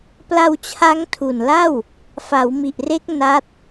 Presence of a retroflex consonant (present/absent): absent